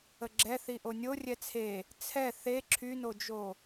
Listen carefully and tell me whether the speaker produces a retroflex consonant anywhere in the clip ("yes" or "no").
no